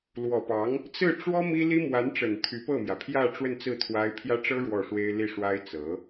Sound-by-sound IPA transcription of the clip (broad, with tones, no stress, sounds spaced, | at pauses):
l w ɔ˨˩ p ɑ˧˥ ŋ | t͡s ɹ̩˥˩ ʈ͡ʂ w ɔ˥ m i˥ l i˥ m w a˧˥ n ʈ͡ʂ ə˨˩ n t̪ʰ y˧˥ p ɤ˥˩ m j ä˩ pʰ j ä˥˧ ʈ͡ʂ w ə˥˧ n t͡s ɹ̩˥˩ t̪ʰ w a˥ ɪ̯ pʰ j ä˥ ʈ͡ʂ ɤ˥ ɻ w ɔ˥˩ ʂ w e˥ ɪ̯ l i˥˩ ʂ w a˥ ɪ̯ t͡s ɤ˧˥